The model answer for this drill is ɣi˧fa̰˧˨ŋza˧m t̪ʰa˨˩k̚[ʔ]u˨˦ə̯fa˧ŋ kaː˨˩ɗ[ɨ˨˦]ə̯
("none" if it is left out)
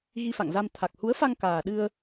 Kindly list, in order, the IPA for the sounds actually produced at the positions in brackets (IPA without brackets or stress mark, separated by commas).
h, ɨ˧